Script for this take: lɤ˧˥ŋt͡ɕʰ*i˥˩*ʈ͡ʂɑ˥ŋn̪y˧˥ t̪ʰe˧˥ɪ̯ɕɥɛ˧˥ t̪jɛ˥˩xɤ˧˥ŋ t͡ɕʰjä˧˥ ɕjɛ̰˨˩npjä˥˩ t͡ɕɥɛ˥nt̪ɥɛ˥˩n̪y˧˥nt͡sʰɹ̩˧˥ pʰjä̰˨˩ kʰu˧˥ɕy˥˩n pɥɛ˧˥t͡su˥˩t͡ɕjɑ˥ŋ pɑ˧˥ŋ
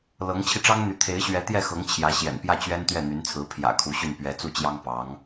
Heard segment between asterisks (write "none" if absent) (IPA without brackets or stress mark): i˧